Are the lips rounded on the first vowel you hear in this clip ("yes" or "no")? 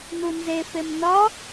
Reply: yes